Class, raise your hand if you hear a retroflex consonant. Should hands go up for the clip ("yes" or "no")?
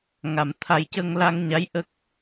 no